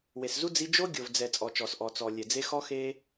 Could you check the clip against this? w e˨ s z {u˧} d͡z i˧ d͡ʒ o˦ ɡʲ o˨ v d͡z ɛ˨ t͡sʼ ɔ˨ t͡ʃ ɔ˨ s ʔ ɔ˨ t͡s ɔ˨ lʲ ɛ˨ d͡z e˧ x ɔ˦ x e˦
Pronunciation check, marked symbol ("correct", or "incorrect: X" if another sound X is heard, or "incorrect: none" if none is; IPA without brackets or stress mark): incorrect: u˦